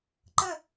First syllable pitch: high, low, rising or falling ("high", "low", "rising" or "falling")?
falling